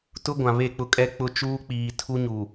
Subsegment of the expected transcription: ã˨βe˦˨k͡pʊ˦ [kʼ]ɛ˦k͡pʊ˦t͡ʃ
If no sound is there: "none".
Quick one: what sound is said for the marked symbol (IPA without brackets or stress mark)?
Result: kʼ